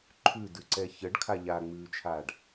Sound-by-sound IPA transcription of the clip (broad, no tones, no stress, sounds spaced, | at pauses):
ǃʰ ʉ d ʉ ǀ ɛ ç ə ɖ kʰ a ʎ a ŋ͡m ʉː t͡ʃʰ aː ɖ